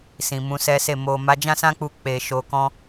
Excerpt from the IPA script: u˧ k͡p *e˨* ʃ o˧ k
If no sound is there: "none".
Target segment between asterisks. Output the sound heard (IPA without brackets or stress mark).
e˧